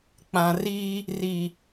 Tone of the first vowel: low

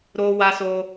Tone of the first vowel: high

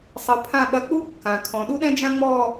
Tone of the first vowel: rising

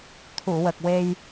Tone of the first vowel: low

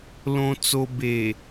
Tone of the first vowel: low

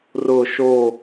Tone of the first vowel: falling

